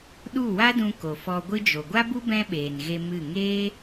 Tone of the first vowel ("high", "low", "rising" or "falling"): falling